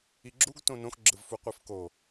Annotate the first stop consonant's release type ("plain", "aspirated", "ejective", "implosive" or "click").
click